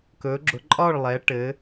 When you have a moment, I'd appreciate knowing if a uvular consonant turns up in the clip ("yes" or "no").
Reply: no